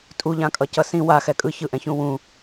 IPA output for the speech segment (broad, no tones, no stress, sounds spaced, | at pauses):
tʼ u ʎ ã kʼ ʌ c ʌ s ĩ w a x ɛ kʼ ɯ ç ɯ ʔ ɛ̃ ç ũ w ũ